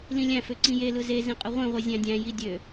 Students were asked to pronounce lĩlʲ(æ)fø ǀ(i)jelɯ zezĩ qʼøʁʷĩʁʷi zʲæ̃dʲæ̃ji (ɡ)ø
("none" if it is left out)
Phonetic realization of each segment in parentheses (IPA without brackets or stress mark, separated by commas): æ̃, ĩ, dʲ